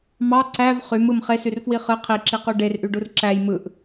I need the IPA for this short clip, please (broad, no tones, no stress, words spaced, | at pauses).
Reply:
mɑ ǀæv χymɯm χesyrfwi χɯ qʰiǁiqu ɖerʔyɖur ǁæj mɯʔ